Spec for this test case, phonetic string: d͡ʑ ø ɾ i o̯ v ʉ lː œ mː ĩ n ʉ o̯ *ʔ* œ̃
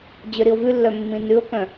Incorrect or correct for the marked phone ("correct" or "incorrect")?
incorrect